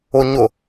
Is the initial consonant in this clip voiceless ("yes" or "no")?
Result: no